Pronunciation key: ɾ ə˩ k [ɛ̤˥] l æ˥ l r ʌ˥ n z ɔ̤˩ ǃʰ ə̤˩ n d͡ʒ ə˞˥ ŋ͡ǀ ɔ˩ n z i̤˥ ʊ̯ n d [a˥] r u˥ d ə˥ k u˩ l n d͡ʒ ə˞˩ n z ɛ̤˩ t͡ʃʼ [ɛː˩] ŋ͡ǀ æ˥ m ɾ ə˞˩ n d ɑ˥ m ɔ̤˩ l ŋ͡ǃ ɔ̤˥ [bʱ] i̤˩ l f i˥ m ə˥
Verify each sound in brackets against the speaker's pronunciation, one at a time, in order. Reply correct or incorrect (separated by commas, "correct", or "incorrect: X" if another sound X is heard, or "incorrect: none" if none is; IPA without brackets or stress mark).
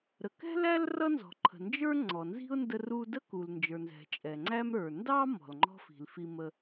correct, incorrect: ə˥, incorrect: ɛ˩, incorrect: f